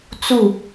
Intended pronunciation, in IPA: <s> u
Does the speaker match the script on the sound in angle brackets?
no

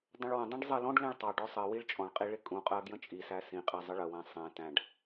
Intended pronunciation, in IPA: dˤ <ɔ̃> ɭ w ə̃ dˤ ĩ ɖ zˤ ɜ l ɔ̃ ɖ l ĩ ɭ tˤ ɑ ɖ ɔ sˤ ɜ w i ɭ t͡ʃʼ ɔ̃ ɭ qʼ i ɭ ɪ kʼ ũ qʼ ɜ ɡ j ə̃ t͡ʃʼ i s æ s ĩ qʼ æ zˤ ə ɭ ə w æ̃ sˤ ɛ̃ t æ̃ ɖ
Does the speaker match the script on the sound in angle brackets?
no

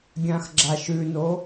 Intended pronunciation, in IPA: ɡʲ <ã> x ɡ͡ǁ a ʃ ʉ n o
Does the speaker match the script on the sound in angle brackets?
yes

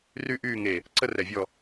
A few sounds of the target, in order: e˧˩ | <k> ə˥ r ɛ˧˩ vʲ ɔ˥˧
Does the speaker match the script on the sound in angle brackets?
no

